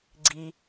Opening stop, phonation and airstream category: click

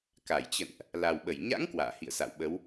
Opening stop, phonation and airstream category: plain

